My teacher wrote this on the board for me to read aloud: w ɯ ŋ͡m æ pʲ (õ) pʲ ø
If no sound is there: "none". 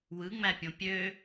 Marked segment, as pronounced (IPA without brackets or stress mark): õ